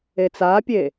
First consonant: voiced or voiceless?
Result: voiceless